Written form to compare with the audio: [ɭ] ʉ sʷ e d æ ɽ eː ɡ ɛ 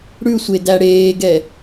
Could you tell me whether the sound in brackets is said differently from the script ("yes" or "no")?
yes